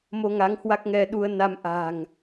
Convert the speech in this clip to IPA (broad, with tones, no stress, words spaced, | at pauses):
mo˧ŋa˨˦ŋ hwa˦˥k̚ŋɛ˧ɗu˧ə̯ na˧mʔa̤˨˩ŋ